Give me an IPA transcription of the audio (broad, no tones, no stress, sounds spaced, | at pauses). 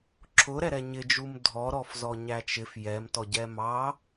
ǁʰ ʊ ɾ ɛ ɾ ɛ ɲ ɪ d͡ʒ u m dʱ ɔ ɾ ɔ f z ɔ ɲ æ t͡ʃ ɪ f j ɛ m t ɔ ɟ ɛ m ɑ